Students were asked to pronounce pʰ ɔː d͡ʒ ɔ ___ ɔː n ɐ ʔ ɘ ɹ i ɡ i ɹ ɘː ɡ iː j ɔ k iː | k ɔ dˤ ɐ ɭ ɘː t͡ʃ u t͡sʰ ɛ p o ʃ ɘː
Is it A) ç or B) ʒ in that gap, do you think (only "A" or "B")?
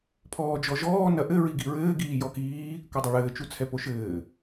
B